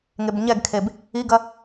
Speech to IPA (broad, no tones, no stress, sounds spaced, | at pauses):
ŋ e b ɲ ɛ ɡ kʰ e b | i ɡ ɐ